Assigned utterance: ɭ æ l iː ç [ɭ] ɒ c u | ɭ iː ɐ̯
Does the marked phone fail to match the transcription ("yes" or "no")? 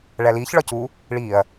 no